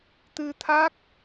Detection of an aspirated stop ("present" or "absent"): present